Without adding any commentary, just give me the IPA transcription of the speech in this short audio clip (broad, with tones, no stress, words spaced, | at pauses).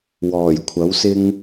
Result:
wɔː˨˩jkʷʰɐ˨˥wsɪ˥ŋ